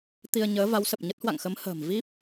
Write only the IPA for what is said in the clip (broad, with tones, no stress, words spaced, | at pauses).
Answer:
t̪i˧ə̯ɲəː˨˦va˨˦wsə˨˩p̚ ɲə˦˥t̚hwa̰˧˨ŋxə˨˦mhə̤ː˨˩m vi˦˥p̚